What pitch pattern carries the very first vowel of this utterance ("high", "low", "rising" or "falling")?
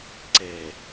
low